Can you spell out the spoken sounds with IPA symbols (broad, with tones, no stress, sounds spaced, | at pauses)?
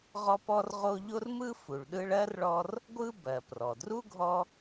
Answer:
ʁ ɔ˦ p ɔ˦ r ʁ o˦ ʎ o˥ r m ɯ˥ f u˨ ɭ ɗ ɯ˥ ɭ ɜ˥ r ɭ ɔ˦ r | ɡʷ ɯ˥ b ɜ˩ p r ɔ˩ d r u˥ ɡʱ ɔ˦